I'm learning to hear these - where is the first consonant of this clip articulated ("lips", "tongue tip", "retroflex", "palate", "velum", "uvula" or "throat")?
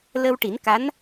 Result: tongue tip